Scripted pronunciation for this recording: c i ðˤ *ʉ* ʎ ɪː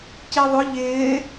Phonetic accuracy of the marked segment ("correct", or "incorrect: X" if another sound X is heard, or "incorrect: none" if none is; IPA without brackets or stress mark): incorrect: ʊ